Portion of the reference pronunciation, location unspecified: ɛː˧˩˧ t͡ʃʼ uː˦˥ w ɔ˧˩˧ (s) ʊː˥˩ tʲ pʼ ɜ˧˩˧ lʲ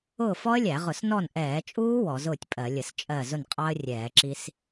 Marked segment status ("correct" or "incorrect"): incorrect